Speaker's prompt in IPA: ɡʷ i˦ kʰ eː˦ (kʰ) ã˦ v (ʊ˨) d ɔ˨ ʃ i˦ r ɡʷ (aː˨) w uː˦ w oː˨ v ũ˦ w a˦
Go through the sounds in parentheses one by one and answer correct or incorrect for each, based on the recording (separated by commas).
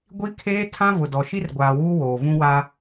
incorrect, correct, correct